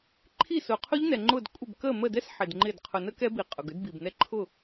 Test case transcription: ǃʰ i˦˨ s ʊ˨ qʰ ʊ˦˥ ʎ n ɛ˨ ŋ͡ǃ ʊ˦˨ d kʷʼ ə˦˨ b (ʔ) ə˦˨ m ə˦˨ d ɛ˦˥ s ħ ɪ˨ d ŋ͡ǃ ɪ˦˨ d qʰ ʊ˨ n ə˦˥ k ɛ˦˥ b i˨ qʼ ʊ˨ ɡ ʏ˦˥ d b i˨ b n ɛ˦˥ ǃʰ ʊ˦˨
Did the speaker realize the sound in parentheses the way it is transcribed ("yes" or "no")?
no